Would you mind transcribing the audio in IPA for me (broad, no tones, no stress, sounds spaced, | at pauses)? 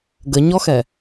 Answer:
ɡ ə ɲ ɔ x ɛ